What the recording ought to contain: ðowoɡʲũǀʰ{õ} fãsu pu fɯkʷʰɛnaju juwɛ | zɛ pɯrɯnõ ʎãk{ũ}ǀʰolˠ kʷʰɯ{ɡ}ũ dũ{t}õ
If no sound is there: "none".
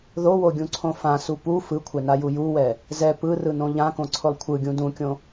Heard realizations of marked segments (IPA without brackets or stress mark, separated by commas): õ, õ, ɡʲ, kʲ